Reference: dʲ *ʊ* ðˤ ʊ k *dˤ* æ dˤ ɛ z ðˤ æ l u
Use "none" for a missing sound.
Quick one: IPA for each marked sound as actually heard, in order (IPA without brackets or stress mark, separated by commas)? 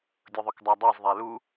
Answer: ʊ, dˤ